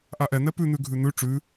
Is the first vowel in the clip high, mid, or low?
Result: low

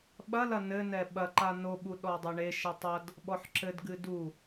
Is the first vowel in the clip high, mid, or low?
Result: low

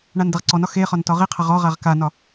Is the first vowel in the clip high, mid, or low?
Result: low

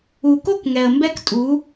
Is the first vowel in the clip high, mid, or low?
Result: high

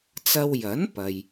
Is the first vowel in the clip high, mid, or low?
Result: low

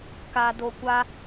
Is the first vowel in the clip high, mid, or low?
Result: low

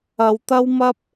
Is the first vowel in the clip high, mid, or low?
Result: low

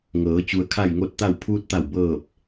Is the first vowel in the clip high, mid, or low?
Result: mid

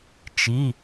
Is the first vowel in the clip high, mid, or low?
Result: high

